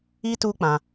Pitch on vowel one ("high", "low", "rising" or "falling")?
high